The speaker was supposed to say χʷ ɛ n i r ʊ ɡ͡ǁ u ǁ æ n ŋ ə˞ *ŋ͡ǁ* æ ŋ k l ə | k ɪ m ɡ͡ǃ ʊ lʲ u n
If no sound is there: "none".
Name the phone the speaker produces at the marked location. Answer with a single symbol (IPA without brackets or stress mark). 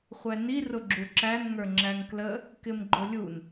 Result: ŋ͡ǁ